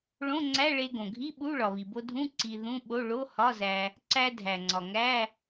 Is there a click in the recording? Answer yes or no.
yes